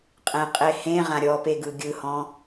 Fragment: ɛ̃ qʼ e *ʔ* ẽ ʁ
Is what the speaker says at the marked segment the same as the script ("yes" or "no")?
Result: no